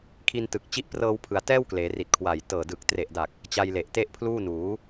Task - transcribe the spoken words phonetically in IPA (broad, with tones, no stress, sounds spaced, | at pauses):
kʰ i˧ n t ɯ˨˩ k̚ t͡ɕ i˦˥ ʔ p r ɤː˧ w pʰ ɯ˩˦ a̯ t ɛː˥˩ w k l eː˩˦ r i˨˩ t̚ kʰ w a˨˩ j t ɤː˨˩ d ɯ˨˩ k̚ t r e˨˩ ʔ d a˨˩ k̚ | t͡ɕ a˧ j l e˨˩ ʔ t e˥˩ ʔ pʰ l uː˥˩ n uː˩˦